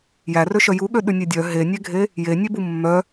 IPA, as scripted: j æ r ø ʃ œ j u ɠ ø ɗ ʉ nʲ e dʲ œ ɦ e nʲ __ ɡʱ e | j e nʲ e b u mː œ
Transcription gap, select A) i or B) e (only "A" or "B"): B